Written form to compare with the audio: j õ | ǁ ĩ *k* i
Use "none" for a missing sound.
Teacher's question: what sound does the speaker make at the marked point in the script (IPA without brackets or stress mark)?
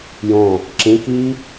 k